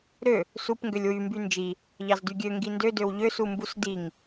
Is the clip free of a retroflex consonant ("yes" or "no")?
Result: yes